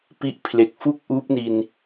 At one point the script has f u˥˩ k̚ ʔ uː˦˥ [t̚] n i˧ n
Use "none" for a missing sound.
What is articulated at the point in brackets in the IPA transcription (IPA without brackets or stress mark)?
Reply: p̚